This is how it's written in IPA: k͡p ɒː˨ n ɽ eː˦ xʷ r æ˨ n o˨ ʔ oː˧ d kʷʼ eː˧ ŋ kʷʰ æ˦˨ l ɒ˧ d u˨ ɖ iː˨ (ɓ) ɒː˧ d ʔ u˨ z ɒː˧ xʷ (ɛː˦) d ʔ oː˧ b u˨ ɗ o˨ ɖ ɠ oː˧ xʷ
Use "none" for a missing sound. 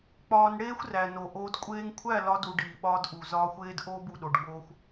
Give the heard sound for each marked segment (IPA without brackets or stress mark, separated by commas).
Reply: ɓ, eː˦